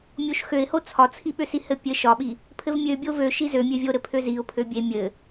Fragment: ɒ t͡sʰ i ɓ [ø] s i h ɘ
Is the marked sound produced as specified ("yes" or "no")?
yes